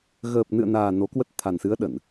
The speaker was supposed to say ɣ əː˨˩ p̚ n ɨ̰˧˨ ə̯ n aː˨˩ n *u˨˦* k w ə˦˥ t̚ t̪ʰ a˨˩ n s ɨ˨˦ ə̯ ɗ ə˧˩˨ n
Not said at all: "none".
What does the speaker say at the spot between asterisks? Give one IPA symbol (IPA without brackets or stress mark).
o˨˦